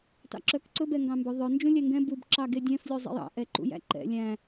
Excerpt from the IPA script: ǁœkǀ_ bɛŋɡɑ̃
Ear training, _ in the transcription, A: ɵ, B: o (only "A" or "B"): A